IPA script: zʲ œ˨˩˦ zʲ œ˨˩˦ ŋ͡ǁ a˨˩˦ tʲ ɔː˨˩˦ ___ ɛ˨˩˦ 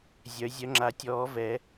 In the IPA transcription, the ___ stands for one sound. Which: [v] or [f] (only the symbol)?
v